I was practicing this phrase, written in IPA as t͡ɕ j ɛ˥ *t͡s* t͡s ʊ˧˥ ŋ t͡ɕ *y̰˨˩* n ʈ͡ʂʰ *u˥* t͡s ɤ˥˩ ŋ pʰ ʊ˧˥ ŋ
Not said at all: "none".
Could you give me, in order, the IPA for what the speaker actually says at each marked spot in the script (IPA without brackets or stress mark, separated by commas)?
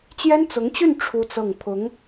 n, y˥˩, u˥